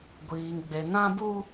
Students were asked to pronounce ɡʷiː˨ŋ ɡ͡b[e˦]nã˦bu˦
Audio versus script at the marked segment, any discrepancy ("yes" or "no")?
yes